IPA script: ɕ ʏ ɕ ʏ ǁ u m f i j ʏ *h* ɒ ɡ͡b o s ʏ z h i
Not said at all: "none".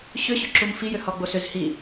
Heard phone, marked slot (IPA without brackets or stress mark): h